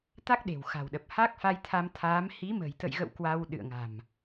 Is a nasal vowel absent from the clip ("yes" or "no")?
yes